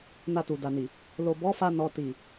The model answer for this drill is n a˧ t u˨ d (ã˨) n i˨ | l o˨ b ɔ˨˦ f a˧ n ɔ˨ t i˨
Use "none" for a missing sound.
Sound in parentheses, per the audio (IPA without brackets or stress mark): a˨